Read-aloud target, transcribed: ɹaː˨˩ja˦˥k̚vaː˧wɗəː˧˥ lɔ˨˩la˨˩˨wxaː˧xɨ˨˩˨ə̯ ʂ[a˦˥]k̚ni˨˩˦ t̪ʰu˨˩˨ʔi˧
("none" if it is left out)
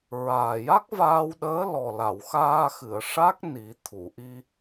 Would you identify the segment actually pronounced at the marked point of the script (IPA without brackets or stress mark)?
a˦˥